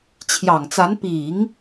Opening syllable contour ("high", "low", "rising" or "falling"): low